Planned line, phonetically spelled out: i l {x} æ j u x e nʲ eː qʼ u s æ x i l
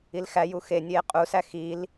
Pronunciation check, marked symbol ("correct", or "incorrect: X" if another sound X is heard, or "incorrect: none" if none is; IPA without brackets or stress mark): correct